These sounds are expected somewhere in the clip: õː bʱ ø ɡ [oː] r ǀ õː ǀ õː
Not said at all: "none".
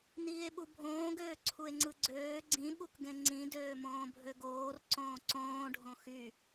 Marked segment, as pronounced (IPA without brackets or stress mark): oː